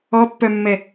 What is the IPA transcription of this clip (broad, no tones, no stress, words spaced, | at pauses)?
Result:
ɔpːœmːɛ